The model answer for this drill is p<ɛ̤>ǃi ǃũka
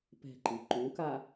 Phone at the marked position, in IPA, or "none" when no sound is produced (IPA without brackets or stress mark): ɛ̤